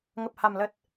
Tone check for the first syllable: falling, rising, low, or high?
low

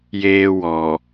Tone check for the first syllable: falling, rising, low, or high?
high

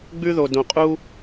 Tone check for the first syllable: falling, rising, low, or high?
high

